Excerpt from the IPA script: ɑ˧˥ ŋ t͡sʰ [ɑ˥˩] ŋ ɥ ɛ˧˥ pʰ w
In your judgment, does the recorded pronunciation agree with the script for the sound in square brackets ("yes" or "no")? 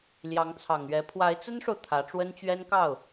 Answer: no